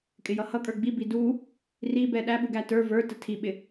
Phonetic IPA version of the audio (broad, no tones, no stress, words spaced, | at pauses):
kʼɪjʌhʌkʼə˞ ɡ͡bibi du | ri bɛɗæɓuɡ ætə˞ və˞tə tʰiɓɪ